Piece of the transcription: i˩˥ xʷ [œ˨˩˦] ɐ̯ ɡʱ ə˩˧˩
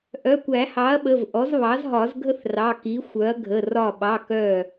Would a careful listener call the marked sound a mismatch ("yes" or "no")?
yes